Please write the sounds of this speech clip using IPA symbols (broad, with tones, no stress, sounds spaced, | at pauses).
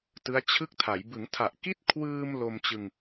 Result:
t ɯ˦˥ a̯ t͡ɕʰ ɯ˥˩ k̚ tʰ a˩˦ j b ɯ˩˦ ŋ tʰ a˨˩ ʔ k i˥˩ t̚ kʰ w ɯː˧ m l o˧ m t͡ɕ ɯ˧ ŋ